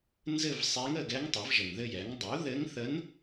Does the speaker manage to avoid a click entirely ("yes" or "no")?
yes